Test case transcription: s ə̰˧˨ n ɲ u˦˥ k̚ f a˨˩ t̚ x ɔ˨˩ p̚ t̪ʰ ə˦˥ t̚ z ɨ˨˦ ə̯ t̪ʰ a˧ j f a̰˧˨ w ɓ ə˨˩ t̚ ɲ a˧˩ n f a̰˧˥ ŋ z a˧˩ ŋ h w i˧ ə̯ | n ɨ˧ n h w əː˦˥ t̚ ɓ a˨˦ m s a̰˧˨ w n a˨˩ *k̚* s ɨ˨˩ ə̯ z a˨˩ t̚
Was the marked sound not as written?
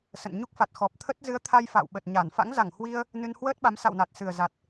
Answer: yes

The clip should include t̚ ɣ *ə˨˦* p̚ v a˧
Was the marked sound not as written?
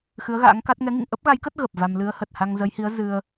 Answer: yes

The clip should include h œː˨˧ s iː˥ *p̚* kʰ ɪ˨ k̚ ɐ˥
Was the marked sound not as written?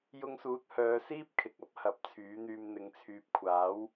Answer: no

